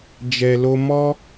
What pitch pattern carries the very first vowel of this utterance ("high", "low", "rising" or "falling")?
low